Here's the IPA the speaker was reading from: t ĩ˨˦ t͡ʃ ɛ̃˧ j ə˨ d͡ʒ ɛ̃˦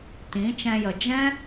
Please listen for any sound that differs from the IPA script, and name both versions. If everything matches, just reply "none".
none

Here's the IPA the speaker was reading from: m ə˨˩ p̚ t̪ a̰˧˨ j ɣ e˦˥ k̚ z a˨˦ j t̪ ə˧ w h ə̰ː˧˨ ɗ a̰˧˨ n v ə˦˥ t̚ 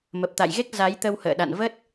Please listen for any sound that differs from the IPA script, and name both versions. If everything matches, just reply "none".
none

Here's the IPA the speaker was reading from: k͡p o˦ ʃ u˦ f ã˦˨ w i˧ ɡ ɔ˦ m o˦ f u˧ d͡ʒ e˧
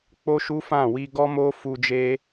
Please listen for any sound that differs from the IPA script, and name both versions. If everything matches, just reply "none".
none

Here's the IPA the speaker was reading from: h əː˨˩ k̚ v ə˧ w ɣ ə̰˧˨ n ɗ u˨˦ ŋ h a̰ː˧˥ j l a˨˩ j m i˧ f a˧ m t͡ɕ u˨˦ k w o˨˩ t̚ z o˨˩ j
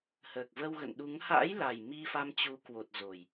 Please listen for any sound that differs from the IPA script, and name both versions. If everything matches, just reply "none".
none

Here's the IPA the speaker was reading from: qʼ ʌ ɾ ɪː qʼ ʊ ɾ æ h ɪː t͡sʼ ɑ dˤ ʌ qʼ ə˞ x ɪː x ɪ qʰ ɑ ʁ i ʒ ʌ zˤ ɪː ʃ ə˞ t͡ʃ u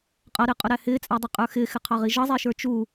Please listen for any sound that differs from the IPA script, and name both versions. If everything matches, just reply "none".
none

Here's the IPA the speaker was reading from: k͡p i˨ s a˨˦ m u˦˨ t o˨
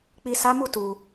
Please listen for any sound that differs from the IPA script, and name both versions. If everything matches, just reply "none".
o˨ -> u˨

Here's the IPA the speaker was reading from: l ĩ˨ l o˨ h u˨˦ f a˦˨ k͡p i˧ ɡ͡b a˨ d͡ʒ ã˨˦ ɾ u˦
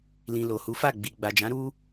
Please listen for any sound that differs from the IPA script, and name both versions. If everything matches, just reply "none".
k͡p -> ɡ͡b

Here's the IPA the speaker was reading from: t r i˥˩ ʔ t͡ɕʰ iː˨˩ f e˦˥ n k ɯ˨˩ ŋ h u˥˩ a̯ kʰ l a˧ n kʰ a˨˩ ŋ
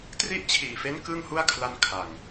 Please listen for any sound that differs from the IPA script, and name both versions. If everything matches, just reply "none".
ɯ˨˩ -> ɯ˥˩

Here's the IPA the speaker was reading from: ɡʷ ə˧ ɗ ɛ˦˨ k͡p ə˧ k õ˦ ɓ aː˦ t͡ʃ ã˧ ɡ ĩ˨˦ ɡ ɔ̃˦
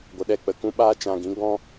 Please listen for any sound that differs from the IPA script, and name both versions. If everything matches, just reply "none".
õ˦ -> ũ˦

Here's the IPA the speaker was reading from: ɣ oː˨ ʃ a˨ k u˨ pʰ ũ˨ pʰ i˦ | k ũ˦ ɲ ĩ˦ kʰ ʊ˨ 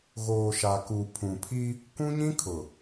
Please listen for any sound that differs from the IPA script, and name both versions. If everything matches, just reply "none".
none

